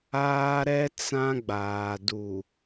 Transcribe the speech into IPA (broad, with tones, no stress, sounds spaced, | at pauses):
aː˦ ɾ ɛ˦ t͡s ã˦ ɡ͡b aː˨ d u˨